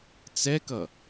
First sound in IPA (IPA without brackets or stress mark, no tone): t͡s